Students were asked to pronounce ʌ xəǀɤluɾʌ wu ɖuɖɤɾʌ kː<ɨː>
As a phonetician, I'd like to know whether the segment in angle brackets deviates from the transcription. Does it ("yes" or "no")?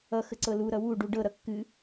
yes